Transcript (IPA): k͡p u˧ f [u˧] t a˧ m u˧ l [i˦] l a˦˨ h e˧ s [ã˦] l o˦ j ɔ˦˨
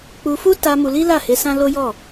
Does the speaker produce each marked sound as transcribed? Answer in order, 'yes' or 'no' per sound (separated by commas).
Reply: no, yes, yes